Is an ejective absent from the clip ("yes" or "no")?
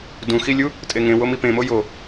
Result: no